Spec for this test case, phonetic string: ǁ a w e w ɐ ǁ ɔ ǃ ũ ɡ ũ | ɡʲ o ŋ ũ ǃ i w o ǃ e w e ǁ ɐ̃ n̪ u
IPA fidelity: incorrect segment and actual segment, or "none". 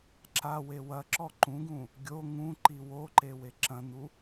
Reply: none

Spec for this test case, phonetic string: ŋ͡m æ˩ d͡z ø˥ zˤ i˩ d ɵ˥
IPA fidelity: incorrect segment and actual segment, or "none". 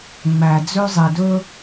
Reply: none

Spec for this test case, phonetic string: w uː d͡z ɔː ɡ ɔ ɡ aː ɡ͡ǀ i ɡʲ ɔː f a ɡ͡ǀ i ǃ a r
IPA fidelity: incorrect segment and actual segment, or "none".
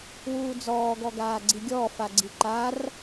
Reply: none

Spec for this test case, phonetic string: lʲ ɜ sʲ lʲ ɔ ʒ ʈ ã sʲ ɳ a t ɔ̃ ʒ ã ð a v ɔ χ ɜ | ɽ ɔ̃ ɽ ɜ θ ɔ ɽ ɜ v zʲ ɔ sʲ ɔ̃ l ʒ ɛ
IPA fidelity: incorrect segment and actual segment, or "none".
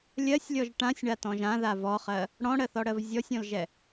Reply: none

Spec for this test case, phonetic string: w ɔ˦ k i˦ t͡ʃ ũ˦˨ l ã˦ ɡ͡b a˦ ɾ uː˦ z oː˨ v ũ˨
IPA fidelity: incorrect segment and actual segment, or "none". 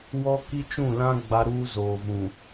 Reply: none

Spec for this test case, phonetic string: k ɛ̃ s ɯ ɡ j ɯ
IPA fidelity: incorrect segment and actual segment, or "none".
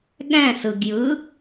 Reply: k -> ɠ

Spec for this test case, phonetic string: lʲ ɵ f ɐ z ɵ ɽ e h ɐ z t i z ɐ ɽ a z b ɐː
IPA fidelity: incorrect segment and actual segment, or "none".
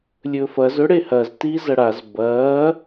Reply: none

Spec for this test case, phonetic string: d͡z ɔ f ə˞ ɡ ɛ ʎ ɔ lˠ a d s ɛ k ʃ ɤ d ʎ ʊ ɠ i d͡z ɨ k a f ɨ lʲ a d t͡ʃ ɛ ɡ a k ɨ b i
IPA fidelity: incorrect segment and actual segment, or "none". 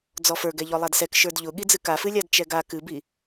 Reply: ɤ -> ə˞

